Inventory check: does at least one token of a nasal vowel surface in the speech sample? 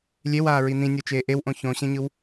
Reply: yes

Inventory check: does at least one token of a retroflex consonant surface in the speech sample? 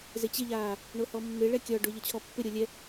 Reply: yes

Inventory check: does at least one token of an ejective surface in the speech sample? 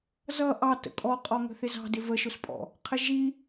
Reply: yes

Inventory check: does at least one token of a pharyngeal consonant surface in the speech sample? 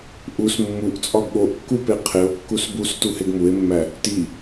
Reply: no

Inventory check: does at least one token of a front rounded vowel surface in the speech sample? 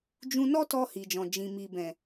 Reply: no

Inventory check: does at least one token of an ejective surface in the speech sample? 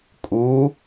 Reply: yes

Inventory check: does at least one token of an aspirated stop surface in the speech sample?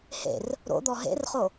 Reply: no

